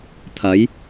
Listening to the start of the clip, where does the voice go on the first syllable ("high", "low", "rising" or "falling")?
rising